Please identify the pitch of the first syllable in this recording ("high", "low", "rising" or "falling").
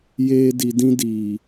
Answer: high